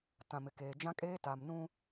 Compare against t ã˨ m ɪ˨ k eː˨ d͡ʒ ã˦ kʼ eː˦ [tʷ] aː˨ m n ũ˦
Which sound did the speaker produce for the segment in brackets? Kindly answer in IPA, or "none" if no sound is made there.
t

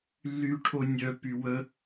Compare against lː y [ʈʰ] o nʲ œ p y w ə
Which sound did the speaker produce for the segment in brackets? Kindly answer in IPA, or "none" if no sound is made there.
ʈʰ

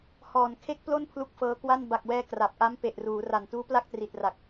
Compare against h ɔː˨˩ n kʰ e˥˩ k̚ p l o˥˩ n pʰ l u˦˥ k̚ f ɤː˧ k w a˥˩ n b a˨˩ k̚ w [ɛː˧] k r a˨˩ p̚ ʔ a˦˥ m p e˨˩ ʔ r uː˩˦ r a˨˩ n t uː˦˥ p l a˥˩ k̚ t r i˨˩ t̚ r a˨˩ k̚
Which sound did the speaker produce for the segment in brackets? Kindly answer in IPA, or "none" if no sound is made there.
ɛː˧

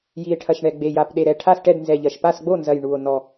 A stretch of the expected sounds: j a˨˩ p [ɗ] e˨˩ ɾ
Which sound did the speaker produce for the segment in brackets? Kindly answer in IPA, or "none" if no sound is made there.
ɗ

